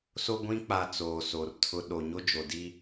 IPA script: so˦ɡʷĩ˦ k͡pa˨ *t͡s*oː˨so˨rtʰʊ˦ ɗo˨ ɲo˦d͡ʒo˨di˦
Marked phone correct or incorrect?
correct